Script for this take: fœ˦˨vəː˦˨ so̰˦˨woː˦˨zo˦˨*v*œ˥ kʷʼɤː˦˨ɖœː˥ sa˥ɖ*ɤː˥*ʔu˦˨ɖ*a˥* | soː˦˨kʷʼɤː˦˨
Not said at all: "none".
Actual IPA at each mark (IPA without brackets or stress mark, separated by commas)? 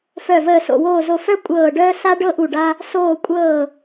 f, ɤ˥, a˥